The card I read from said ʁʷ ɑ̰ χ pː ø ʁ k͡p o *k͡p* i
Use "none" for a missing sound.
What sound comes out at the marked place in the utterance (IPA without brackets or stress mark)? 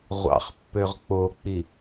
k͡p